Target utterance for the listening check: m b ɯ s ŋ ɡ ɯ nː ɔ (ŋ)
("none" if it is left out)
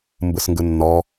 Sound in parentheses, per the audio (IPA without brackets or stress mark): none